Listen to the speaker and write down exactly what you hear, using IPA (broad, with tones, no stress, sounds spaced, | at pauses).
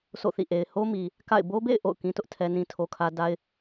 sʰ o̰˦˨ θ ḭ˦˨ ʔ e˨ ɪ̯ h o˦ m i˨ | k a̰˦˨ ɪ̯ b o˦ b ḛ˦˨ ɪ̯ ʔ o̰˦˨ ʊ̯ k ĩ˦ t ʊ˦ ʔ tʰ ɛ˦ n ĩ˦ tʰ o˦ kʰ ä˦ d a˦ ɪ̯